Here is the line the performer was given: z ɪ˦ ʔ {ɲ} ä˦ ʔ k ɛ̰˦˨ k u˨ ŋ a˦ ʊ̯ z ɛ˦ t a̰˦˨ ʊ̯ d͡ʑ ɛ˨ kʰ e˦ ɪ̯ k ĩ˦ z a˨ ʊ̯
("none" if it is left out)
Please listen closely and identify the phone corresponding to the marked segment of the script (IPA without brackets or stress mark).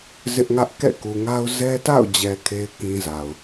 ŋ